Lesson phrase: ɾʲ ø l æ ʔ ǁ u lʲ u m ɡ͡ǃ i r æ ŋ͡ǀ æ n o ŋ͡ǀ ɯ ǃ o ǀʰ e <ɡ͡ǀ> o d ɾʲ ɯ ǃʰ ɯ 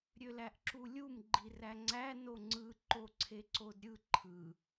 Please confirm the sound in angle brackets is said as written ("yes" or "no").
no